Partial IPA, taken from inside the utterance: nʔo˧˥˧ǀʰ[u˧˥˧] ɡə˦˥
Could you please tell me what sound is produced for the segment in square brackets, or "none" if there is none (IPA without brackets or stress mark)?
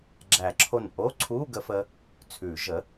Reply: u˧˥˧